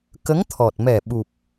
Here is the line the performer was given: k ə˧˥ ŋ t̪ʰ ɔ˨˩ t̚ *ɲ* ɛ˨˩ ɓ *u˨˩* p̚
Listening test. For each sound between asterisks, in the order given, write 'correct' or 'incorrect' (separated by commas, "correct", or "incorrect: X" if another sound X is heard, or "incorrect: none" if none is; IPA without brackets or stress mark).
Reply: incorrect: m, correct